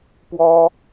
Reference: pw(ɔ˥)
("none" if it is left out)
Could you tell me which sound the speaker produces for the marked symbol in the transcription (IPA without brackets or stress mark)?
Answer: ɔ˥